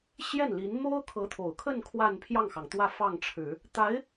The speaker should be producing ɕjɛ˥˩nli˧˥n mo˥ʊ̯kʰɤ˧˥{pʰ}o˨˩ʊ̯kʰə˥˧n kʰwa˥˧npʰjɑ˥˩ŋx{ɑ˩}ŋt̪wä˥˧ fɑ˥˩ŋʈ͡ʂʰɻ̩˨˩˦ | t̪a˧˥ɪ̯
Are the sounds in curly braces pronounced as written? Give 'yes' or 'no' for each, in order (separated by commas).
no, yes